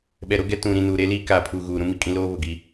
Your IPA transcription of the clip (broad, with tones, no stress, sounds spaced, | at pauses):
ɓ ɛ˨ ɾ o˦ ɡ ɛ˦ t ũ˨ ɾ ĩ˨ n uː˨ ɾ e˦ l iː˦ k aː˨ pʰ u˨ ɣ uː˨ ɾ ũ˦ m i˦ kʼ ĩ˦ l oː˦ β ʊ˨ ɡ i˦